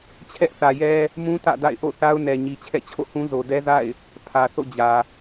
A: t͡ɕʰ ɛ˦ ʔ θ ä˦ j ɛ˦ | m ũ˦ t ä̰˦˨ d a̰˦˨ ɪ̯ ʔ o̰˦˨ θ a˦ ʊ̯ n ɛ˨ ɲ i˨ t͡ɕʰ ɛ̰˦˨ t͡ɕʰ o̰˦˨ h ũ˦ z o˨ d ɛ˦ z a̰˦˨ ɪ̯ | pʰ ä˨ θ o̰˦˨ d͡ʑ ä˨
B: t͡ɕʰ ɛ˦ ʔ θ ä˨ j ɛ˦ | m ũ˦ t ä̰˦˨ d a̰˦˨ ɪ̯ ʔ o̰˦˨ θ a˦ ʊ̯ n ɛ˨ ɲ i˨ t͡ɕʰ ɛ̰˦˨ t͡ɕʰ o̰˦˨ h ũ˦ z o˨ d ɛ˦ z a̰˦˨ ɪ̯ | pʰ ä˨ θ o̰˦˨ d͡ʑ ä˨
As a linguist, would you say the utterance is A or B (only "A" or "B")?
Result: B